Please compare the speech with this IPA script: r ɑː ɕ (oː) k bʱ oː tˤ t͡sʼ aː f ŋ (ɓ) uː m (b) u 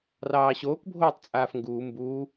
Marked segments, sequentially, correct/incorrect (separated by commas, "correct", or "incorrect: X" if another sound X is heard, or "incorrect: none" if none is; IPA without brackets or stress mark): correct, incorrect: ɡ, correct